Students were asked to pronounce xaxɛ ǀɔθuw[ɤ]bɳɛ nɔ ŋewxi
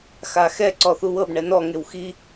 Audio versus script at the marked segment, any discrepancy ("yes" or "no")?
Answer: no